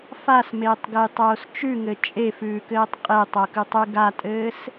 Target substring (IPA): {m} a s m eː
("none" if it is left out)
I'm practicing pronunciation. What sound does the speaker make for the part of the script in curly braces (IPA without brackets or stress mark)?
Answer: f